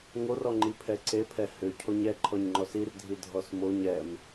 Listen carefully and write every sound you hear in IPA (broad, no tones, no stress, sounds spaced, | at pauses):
ŋ o r ɔ ŋ͡ǃ i pʰ ɛ ǀ e pʰ ɛ h ʏ cʰ o ɲ ɛ ǃʰ ɔ ɲ ŋ͡ǃ ɔ s i r dʱ i dʱ ɔ s m o ɲ ɛ m